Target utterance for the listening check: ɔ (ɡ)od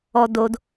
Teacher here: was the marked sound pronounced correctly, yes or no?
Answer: no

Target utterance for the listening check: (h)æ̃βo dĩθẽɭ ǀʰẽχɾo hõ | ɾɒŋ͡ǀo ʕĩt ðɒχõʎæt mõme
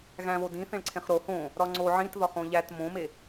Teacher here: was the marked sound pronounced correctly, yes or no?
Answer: no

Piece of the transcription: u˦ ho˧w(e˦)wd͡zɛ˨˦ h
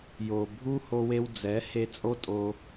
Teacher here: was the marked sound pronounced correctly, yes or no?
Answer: no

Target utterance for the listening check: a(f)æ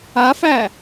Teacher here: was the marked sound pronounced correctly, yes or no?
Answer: yes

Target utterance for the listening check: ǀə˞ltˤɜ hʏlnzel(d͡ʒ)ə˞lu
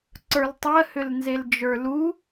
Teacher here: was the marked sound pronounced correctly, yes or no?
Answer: yes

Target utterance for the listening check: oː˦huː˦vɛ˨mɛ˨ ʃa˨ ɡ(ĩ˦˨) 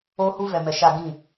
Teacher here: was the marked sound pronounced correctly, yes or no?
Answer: yes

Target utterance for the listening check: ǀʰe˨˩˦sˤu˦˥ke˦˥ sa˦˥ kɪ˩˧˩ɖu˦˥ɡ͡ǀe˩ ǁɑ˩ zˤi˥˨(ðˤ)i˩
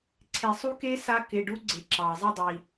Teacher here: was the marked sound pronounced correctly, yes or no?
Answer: no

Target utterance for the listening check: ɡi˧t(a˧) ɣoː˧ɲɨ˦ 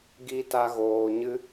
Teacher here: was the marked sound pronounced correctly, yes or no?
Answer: yes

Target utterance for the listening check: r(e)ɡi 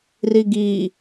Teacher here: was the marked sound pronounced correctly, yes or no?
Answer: no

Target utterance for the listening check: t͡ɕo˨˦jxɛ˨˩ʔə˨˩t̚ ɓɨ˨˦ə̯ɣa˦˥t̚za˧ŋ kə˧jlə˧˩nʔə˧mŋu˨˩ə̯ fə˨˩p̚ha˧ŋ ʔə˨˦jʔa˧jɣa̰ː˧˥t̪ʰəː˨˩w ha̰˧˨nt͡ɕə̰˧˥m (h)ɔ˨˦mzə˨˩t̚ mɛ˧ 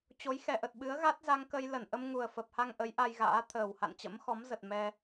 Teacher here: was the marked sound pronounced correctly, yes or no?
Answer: no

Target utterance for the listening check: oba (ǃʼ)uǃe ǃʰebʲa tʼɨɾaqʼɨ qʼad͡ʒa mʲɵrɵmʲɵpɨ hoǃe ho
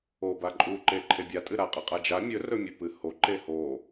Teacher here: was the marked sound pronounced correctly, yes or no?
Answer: yes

